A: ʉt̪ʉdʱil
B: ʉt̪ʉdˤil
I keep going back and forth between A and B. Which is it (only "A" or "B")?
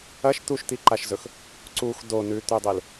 B